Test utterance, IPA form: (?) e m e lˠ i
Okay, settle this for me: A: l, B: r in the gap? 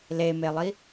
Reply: A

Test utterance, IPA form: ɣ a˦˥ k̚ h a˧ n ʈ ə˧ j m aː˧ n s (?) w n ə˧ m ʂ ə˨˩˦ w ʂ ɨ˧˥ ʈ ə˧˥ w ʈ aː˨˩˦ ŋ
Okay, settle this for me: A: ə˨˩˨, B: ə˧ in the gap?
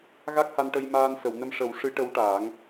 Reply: A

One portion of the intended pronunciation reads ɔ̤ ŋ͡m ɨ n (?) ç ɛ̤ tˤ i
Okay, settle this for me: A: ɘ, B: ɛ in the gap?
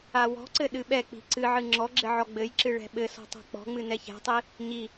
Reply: B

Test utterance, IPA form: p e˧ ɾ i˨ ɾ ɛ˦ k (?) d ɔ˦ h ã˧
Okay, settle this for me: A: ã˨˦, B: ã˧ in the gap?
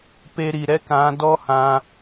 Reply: A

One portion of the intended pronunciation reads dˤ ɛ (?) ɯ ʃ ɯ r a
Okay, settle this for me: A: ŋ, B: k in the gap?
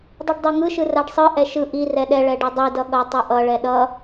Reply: A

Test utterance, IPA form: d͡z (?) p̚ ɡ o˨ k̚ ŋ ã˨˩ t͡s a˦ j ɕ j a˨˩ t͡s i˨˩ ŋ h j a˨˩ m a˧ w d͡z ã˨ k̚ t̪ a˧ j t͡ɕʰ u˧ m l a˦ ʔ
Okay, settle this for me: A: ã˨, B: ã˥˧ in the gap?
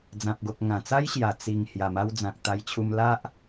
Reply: A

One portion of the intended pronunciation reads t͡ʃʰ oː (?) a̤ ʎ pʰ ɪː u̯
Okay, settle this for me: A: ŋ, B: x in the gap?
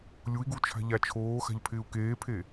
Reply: B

